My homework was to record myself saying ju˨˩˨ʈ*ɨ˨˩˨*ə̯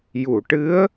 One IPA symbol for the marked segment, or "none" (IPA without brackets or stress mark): ɨ˧˥